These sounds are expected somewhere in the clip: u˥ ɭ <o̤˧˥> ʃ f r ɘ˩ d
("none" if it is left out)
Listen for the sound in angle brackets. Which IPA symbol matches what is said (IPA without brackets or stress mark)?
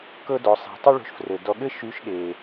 o̤˧